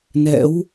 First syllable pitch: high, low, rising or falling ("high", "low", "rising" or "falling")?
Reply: rising